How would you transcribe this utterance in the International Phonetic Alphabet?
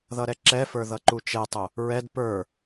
ð ʌ ɾ ɛ ǁ ɛ f ə˞ ð ʌ ǃ u t͡ʃ ɛ tˤ ʊ | ɹ ɛ d p ə˞

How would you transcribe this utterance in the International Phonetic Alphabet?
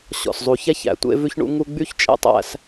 ɕ ɔ̰˨ s zˤ u˨ ç æ˦ ç æ̰˨ tʷ ḛ˦ v ʉ˦ ç ɳ ṵ˦ ŋ u˦ ɡ͡b y˦ ç t͡ʃʼ ḛ˦ tˤ æ̰˦ s

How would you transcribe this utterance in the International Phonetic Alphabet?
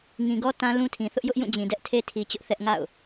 ŋ ĩ˨ ɡ ɔ˦ t ã˦ l ũ˦ tʰ ĩ˨ θ ʊ˦ ʔ j ʊ˦ ʔ j ũ˦˨ d͡ʑ ĩ˨ d ɛ˦ ʔ tʰ e˦ tʰ i˨ t͡ɕ ʊ˦ ʔ θ ɛ˦ ʔ ŋ a̰˦˨ ʊ̯

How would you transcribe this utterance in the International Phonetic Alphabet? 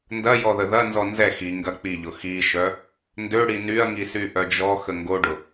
n d ɐ j ɔ ð ə ð ɐ n z ɔ n z ɛ x i ŋ ɡ ɐ k͡p i ʎ ʊ x i ʃ œ | n d ø ɽ i n y ɐ̯ ŋ i s y ʔ œ d͡ʒ ɔ x ə ŋ ɡ o ɖ ʊ

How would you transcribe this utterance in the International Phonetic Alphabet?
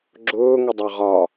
ɡ͡ǁ ʊː ŋ ə dˤ ɑ ʁ ɒ

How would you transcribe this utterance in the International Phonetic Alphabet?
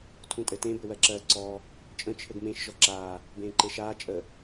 tʰ ũ tʼ ɘ t ẽ b ɘ w ɜ ǁ ɜː ǀ ɔː | t͡ʃʼ ə̃ t͡ʃʰ ɘ ɡ m ẽ ʃ ʒ ɔ ǁ aː | b ẽː ǃ e ʃ aː t͡ʃʼ ə

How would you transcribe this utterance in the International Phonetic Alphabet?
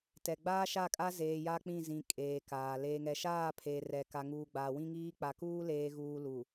t ɛ˨ ɡ͡b aː˦ ʃ a˦˨ kʼ a˦ z eː˨ j a˦ k͡p ĩ˦˨ z ĩ˨ kʼ eː˨ k aː˨ l eː˨ ŋ ɛ˨ ʃ aː˦˨ pʰ eː˨ r ɛ˨ k a˨ ŋ uː˨ ɡ͡b aː˨ w ĩ˦ ŋ iː˦ k͡p a˨ k uː˦ l eː˨ ɣ uː˨ l u˨

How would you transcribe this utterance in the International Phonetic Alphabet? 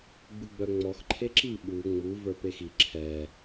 ɡ͡b u ɡ͡b œ ŋ͡m ɔ x ǃʰ e ǁ i ɓ u ŋ͡m u v ə˞ p e x i ǁʰ ɛ

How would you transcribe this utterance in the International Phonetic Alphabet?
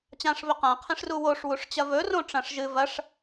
t͡ɕ ã ʂ β ɵ q ã qʰ ẽ ʂ r u w o ʂ w u ʂ t͡ɕ ɐ v ɵ r õ ʈ͡ʂ ɐ̃ ʂ ʒ ɨ v ɐ ʂ

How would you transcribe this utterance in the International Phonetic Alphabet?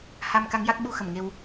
h a˧ m k a˧˥ ŋ j a˦˥ k̚ ɓ u˧ x ə˨˩˨ m ŋ e˧ w

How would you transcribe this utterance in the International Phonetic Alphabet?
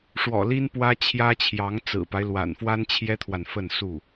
ʂ w ɔ̰˨˩ l i˥ n p w ä˥ t͡ɕʰ j ä˥ t͡ɕʰ j ɑ˧˥ ŋ t͡s ɹ̩˨˩ p a˦ ɪ̯ l w a̰˨˩ n f w a˥ n t͡ɕʰ j ɛ˥ t̪ʰ w a˨ n f ə˥˧ n s u˥˩

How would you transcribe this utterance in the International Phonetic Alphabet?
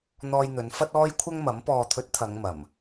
n̪ ɔː˧ j n̪ ɵ˨˧ n f ɐ˥ t̚ ɔː˥ j kʷʰ ɐ˥ ŋ m ɐ˨˥ m p ɔː˨ t̪ʰ ɵ˨˥ t̚ t̪ʰ ɐ˨˧ ŋ m ɐ˨˩ m

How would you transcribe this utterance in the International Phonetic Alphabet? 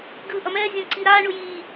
ɡ ɯː ʔ ʌ m ɛː zʲ õ ǀ i ɾ aː ɳ u j iː

